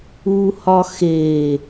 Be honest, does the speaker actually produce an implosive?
no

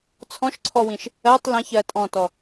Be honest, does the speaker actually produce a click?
yes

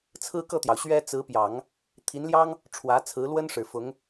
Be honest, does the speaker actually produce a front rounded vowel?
no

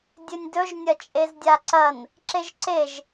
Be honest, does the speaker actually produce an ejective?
yes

